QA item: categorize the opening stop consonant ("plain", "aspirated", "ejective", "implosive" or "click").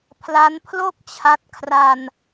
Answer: aspirated